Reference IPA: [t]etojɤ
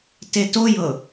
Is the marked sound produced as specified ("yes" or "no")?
yes